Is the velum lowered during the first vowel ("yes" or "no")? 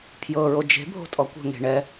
no